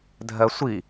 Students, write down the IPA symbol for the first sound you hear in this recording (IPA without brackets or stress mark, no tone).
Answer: dʱ